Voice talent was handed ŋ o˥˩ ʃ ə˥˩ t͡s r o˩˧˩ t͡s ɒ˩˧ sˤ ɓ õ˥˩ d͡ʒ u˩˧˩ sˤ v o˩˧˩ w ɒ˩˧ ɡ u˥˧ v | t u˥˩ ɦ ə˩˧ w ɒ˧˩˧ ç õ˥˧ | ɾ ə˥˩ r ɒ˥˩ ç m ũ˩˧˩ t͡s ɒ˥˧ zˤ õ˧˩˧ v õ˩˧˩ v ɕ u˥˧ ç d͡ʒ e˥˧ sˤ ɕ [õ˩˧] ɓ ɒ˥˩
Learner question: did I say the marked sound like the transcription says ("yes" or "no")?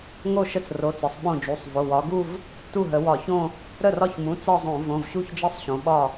yes